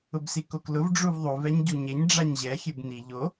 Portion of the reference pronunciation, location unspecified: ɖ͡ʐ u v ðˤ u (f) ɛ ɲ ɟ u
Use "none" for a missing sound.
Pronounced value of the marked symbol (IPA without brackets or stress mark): v